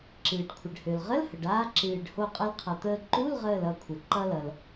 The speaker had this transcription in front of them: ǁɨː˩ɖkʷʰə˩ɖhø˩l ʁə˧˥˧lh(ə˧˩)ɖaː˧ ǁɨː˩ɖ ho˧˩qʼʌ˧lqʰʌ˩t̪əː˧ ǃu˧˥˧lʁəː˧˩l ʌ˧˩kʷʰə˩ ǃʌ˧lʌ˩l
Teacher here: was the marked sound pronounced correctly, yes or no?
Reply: no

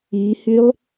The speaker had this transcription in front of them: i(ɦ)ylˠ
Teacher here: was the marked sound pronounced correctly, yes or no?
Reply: no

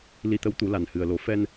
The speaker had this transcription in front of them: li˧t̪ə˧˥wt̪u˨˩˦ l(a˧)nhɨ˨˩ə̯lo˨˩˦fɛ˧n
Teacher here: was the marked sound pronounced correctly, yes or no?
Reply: no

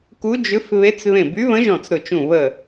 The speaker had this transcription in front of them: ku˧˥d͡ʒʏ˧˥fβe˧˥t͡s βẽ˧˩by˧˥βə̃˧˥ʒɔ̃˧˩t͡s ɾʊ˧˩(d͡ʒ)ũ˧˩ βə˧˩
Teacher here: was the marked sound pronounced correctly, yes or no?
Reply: no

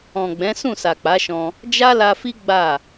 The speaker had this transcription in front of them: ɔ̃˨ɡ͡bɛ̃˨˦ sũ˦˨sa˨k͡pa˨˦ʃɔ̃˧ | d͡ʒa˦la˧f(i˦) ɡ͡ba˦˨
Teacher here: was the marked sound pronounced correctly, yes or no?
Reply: yes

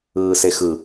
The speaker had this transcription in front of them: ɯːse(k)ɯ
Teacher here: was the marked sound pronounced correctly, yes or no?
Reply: no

